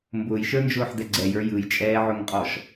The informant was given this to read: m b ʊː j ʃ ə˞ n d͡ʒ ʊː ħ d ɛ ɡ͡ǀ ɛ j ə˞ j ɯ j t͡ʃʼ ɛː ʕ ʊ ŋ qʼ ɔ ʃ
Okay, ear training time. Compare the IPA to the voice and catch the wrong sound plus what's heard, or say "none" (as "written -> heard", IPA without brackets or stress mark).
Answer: none